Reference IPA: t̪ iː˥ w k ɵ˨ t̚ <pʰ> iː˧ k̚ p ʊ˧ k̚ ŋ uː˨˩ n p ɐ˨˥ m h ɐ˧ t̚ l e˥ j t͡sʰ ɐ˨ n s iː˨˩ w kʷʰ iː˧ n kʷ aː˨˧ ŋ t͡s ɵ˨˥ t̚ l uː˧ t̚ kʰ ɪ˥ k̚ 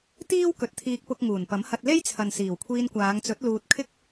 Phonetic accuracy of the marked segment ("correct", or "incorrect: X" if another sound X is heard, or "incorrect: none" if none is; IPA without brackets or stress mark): incorrect: t̪ʰ